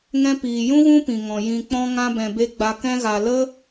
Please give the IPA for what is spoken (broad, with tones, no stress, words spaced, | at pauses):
ŋɛ̃˧piː˨jũ˦ ɣũ˦pĩ˨ŋɔ̃˨ jĩ˨k͡pɔ̃˧ŋã˧bɛ̃˨ be˧ɡ͡ba˧ kɛ̃˧ɣa˨lə˦